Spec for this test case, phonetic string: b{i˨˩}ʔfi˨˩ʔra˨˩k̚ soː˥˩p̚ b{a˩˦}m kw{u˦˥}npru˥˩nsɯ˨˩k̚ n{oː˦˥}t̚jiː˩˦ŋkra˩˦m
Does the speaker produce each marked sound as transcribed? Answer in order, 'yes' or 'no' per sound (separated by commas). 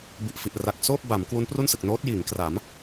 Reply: yes, yes, yes, yes